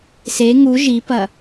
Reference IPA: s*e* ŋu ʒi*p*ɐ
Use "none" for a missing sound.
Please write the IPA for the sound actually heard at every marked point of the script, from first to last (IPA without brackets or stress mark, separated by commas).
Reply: e, p